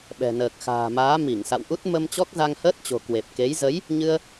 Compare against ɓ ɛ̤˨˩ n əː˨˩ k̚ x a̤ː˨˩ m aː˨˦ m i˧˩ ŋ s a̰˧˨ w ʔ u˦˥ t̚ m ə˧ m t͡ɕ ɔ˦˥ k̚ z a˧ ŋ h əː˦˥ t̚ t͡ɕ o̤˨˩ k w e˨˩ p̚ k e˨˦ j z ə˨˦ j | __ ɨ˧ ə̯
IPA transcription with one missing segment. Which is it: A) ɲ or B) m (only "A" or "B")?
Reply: A